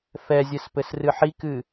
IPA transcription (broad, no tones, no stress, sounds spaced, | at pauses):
f ɛ zʲ ɘ s p ɘ s r ɨ ħ i k ɨ